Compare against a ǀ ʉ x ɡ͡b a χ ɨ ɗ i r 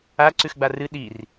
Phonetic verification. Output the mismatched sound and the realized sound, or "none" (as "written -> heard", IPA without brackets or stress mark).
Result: χ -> r